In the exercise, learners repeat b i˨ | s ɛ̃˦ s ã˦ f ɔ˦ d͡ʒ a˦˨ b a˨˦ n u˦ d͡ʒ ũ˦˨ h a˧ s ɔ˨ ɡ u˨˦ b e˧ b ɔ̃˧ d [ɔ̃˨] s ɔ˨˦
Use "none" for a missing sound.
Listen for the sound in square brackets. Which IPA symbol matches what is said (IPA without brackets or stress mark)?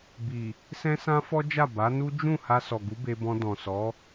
ɔ̃˨